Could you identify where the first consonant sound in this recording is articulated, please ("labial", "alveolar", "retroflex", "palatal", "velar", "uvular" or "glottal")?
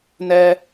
alveolar